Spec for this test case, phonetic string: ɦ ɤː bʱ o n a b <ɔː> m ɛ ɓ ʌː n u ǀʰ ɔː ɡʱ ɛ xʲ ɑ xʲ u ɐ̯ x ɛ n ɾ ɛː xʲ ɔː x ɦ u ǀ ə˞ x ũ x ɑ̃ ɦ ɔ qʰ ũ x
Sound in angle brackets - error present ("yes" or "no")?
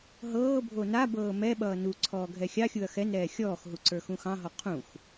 yes